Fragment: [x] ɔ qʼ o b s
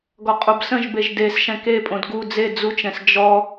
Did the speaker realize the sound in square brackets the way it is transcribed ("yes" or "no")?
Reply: no